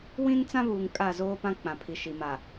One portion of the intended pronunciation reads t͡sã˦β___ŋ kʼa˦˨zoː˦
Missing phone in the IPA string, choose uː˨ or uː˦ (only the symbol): uː˨